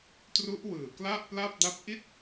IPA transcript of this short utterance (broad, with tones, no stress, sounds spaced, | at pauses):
t r u˦˥ ʔ w ɯː˨˩ k l a˥˩ ʔ p l a˥˩ p̚ d a˥˩ p̚ ʔ i˥˩ t̚